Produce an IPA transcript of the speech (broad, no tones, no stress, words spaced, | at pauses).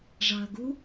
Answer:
ʐɑɐ̯ɡu